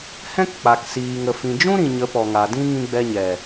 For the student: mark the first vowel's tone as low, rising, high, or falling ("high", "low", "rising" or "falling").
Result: high